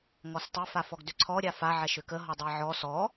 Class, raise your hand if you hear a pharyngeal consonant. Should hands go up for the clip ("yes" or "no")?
yes